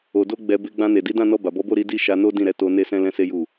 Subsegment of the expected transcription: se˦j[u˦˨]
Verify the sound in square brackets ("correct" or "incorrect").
correct